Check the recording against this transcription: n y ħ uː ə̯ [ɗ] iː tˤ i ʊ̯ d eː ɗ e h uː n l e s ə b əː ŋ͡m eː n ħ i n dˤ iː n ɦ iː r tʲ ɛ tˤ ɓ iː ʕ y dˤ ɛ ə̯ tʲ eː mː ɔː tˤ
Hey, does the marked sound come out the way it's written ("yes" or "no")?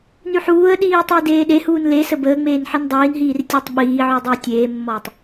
yes